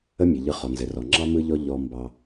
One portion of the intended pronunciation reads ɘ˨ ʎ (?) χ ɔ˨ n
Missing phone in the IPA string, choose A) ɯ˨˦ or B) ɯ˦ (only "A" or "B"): A